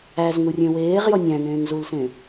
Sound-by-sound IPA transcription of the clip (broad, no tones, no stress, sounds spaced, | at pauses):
æ z ŋ u rʲ ẽ w eː ʁ j ɔ nʲ æ̃ ŋ ẽː ŋ z u l s ẽ